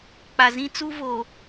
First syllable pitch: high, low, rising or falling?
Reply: low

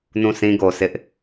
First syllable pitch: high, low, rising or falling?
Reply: falling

